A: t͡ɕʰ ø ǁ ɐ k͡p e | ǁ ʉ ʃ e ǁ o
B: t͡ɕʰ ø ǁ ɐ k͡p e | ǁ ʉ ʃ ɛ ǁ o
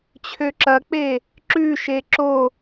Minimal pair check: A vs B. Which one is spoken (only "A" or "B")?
A